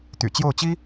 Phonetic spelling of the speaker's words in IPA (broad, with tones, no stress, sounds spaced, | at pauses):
t̪ y̰˨˩ t͡ɕ j o˥˩ ʊ̯ t͡ɕ i˥